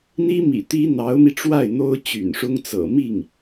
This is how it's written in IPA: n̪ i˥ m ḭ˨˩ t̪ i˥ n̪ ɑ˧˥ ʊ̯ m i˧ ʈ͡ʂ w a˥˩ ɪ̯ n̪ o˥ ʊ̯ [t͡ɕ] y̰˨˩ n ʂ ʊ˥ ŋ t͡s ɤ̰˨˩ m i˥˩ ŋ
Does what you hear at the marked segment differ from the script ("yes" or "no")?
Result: no